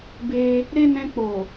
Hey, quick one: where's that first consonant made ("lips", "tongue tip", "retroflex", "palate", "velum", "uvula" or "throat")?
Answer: lips